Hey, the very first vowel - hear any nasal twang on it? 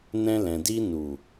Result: yes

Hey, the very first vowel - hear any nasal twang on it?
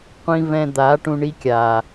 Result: yes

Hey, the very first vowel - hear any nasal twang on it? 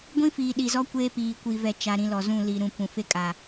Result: yes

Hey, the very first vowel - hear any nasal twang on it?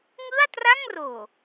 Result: no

